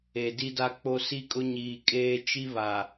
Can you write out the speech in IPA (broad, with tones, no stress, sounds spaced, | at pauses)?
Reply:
e˨ d i˦ d a˦ k͡p o˦ s i˦ kʼ ʊ˦ ɲ iː˨ kʼ eː˦ t͡ʃ i˦ β a˨